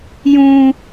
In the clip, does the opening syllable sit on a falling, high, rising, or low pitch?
high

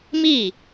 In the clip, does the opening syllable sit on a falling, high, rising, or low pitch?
falling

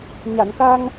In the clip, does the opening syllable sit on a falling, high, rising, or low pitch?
low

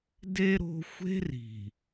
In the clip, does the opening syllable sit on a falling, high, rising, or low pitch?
high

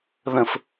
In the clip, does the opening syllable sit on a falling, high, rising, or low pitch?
low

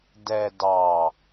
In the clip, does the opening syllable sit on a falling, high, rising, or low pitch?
low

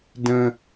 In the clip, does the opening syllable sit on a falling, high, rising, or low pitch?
high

